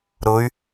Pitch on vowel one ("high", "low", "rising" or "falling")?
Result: rising